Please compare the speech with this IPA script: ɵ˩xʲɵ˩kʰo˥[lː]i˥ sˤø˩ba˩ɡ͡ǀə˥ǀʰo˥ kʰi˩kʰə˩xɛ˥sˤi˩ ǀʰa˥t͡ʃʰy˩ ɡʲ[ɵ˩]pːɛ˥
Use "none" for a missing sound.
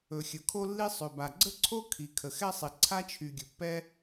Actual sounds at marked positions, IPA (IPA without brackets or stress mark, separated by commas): lː, ɵ˩